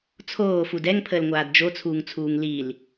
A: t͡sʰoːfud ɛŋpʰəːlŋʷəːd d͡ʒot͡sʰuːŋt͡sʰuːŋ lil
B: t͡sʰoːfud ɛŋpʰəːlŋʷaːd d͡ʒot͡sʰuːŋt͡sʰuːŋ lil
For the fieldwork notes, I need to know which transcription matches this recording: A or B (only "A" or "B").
B